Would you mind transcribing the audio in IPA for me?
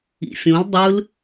ḭ fʲ õ l dˤ ɯ l

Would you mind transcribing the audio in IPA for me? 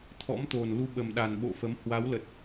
t̪ʰ ɔ̰˧˥ m t̪ o˨˩ n l u˧ ɓ ə˨˩ m ɗ a˨˩ n ɓ o̰˧˨ f ə˨˦ m h w a˨˦ w l ə˨˩ t̚

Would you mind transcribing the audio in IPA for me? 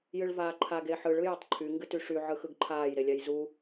j ɨ ɭ v aː ǃʰ a ɡ e ħ ɯ ɭ ɯ j a tˤ ǃʰ y ŋ ɡ ɨ t y ʂ y ʕ ɯ x ɯ ɡ ǃʰ aː j ɾ e lʲ a j z u

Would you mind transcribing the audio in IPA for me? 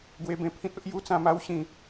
ɡ w e˧ b ẽ˧ pʰ ĩ˦ t̚ o˦ ʔ j u˦ t͡s ã˧ m a˦ w ɕ ĩ˨˩

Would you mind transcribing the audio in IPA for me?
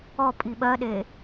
ɔ pʼ i ɓ ɜ ɗ e

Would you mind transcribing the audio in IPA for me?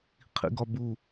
qʰ ḭ ɡ ɒ b u

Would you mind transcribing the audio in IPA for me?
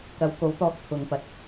k ɐ˨˥ w k o˨˥ w t̪ ɔː˧ k̚ t̪ʰ ʊ˨ ŋ p ɐ˨˥ t̚

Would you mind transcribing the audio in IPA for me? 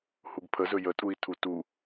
h u ɡ pʰ ə z ɵ j ə tʼ u i̯ tʰ u t u

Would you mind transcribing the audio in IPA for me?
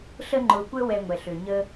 ɬ əː˧ ŋ͡ǃ ʊː˨ kʷ əː˦ w ɛ˧ ŋʷ ɛ˨ ɬ ø˨ ɲ əː˧

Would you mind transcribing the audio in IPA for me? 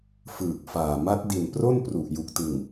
f ɯː˨˩ k̚ f aː˨˩ m a˦˥ t̚ d i˨˩ n p r o˥˩ n p r u˨˩ ʔ j u˨˩ k̚ t ɯ˨˩ ŋ

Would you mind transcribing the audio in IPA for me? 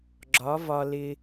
ɡ͡ǁ ɒ˨˦ v ɒ˧ l ɪ˧

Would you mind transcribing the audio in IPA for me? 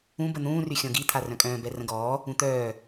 ũ b ə n̪ ũː r y xʲ ɔ̃ ɡ i t̪ʰ a r œ̃ kʼ œ̃ː b ɛ r ə̃ ɡ ɔː | ũ t̪ œː

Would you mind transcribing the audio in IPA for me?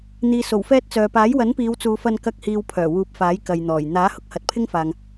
n̪ iː˨ s o˨˩ w f ɛː˥ t̚ t͡s œː˨ p aː˨˥ j w ɐ˨˥ n p iː˨˧ w t͡s uː˨˧ f ɐ˧ n k ɐ˧ k̚ h iː˨ w pʰ œː˨˩ w uː˨˥ p̚ f aː˨˥ j k ɐ˨ j n̪ ɔː˨˩ j n̪ aː˨˥ h ʊ˧ k̚ h ɐ˨˥ t̚ pʰ ɪ˥ ŋ f aː˨ ŋ

